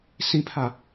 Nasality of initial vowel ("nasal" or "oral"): nasal